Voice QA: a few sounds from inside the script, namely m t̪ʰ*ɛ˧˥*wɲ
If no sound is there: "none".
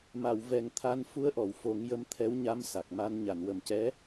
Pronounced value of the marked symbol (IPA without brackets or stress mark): ɛ˧˥